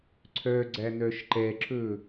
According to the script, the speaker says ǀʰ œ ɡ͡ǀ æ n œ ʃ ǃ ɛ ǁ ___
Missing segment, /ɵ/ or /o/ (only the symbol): ɵ